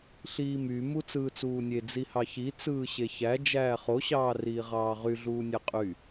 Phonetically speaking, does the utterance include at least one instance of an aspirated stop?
no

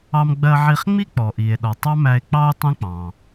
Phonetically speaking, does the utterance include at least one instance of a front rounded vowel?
no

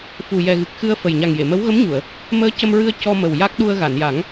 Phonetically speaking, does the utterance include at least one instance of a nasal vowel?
no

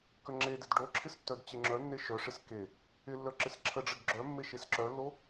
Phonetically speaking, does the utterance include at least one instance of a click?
yes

